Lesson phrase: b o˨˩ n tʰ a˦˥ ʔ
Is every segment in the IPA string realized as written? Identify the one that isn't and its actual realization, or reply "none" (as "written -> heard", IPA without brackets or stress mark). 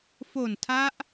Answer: b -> f